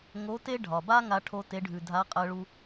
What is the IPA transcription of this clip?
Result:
ŋo˧˥te˥ɖʱɒ˩ba˥ ŋa˥ʈʰo˥te˧˥ɖʱʉ˩ dʱa˧˥qʼɜ˧ɭu˧

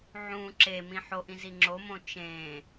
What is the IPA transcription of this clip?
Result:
ʕũ ǁemĩ ħoʔĩ ziŋ͡ǁomõ t͡ʃẽ

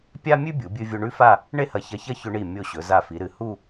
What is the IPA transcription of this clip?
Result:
pʲa˥mʲʉ˥ bʲu˩˧bʲɨ˧vʲo˧ ɳʉ˥fa˥˧ | ɳe˥hɐ˧çɐ˧çɐ˥˧ çɵ˧ɳi˧˩ mʲo˧˩ ɕɵ˩˧za˧˩fi˩˧ ɾɨ˩˧hu˥˧

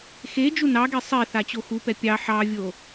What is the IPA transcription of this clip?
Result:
xe d͡ʒunɑɡe sˤe θat͡ɕoxupɛ pʲɑ ħɑvʲo

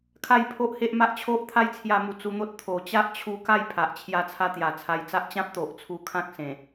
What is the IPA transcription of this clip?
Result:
kʰa˥˧jpʰo˦ʔhe˦ʔma˦ʔ t͡ɕʰo˦ʔt̪ʰa˦jt͡sʰja˧mu˨˩ t͡su˧n̪o˦t̚ t̪ʰo˨˩ t͡ɕa˦ʔt͡ɕʰu˧ka˥˧j pʰa˨ʔt͡ɕʰja˦t͡sʰa˦ t̪ja˨˩t͡sʰa˧jt͡sa˦ʔ t͡ɕã˦p̚t̪o˨ʔ t͡sʰu˧ kʰã˦k̚sẽ˨˩

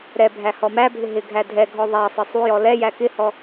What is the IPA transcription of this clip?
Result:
ɾɛ bʱæhɔmæbʱɪ ɦɪɡʱæ dʱɛɡʱɔ ðˤæsˤɪ sˤujɔ lɛjæ kɪhɔ

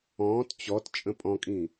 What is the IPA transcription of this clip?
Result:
ɔ̃ːt t͡ɕɔt t͡ʃʼə̃pʼɔ̃kʼĩ

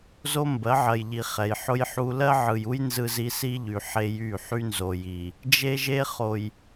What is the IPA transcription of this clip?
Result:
zo˦mbɜ˨˦ʕɜ˨jʎi˨ χɛ˨jħʊ˦jħu˦ lɜ˦ʕɯ˨ju˦j nzɯ˦zi˦ si˦ʎy˨ ħe˦jy˦˨ ħy˦nzo˨ji˨ | d͡ʒe˦ʒe˦ χo˨j

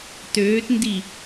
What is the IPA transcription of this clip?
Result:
tøːtndi

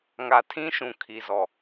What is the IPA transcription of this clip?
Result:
ŋa˨tʰĩ˦ʃũ˨ kʰi˨zɔ˨

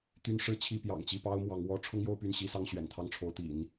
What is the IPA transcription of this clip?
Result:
t̪y˥nʂɻ̩˥t͡ɕʰi˥˩ pjɑ̰˨˩ŋt͡ɕi˥˩pɑ˥ʊ̯mwɑ˧˥ŋ wɔ˥ ʈ͡ʂʰʊ˥ŋjo˥˧ʊ̯py˥˩n ɕi˥sɑ˥ŋ ɕɥɛ̰˨˩n t̪ʰɑ˥˩ŋʈ͡ʂʰo˧˥ʊ̯t̪ḭ˨˩˦n

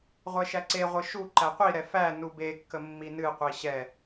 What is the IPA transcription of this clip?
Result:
ʁʷɛʃæǀeʁʷɨ ʃu ǃæqʷiɾɛ fæ nubekːə mːinɨqʷi ɕɛ

